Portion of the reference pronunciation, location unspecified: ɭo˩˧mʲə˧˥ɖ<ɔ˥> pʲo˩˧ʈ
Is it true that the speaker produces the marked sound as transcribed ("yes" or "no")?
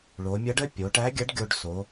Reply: no